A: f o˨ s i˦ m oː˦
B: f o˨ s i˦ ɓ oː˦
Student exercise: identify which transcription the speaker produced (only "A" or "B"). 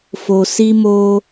A